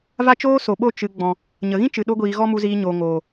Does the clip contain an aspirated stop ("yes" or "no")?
no